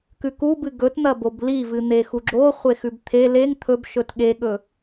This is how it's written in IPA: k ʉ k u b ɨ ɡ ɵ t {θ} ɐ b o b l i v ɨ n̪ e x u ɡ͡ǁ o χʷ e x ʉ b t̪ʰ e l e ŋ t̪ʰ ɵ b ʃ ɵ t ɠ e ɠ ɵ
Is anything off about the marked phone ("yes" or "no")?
yes